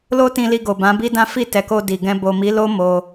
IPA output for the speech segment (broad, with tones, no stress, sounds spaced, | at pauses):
l o˦ t ĩ˧ l i˧ ɡ o˨ b ã˨˦ b i˦ d ã˦ f i˦˨ t ɛ˨ k o˧ d i˨ ɡ ɛ̃˧ b o˨ m i˨˦ l o˦ m o˧